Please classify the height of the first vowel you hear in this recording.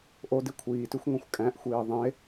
mid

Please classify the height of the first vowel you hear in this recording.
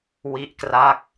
high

